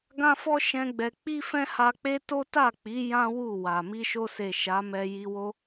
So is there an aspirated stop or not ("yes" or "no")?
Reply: no